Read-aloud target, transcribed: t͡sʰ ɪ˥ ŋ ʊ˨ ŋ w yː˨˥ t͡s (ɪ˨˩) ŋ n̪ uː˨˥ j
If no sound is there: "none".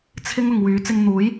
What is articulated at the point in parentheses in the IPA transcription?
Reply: ɪ˧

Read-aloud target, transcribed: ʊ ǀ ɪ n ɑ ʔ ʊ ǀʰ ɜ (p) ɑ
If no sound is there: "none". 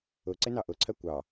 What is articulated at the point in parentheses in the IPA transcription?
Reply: kʷ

